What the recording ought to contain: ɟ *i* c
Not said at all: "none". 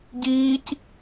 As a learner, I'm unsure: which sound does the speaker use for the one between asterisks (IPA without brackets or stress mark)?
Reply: iː